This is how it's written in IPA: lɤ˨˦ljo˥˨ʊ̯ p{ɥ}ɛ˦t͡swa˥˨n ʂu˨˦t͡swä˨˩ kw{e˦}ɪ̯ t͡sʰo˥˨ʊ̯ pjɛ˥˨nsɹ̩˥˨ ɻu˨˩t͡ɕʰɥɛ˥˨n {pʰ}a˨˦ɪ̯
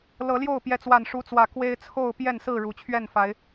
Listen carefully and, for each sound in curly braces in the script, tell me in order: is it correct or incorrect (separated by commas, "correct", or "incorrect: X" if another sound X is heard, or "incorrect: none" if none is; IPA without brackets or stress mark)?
incorrect: j, correct, incorrect: f